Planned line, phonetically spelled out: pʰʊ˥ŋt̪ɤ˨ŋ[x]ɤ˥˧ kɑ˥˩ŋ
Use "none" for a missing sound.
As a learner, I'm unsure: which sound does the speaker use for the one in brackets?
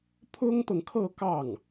kʰ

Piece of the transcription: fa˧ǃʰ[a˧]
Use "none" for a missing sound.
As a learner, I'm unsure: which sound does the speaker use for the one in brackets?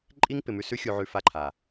a˨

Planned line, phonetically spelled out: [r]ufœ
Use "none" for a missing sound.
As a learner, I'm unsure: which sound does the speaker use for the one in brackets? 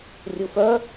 rʲ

